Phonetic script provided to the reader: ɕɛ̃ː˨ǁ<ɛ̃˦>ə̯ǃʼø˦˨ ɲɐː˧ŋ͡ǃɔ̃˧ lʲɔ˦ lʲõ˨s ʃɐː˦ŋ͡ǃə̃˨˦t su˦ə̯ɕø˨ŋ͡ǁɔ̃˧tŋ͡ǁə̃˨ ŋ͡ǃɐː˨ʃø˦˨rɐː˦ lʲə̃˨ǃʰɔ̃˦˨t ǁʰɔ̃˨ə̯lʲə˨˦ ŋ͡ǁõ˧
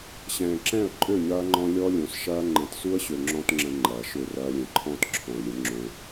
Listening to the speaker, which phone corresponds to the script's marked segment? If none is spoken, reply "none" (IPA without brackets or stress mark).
ɛ̃˦˨